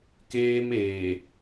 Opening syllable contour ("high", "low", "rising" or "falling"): high